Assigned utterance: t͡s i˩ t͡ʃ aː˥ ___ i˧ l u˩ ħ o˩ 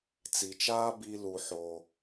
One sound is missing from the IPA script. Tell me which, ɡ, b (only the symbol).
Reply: b